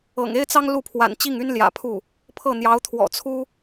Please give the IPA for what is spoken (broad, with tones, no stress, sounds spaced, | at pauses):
ɤ̰˨˩ ŋ e˥ ɪ̯ t͡s ɑ˥ ŋ l u˥˩ pʰ w a̰˨˩ n t͡ɕ i˥˩ ŋ y˥ n l j ä̰˨˩ pʰ u˥˩ | pʰ ɤ˥˩ n̪ j ɑ˧˥ ʊ̯ t̪ʰ w ɔ̰˨˩ t͡sʰ u˥